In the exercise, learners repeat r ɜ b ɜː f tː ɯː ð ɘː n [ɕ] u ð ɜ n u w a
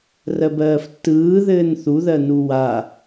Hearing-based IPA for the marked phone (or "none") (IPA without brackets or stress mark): θ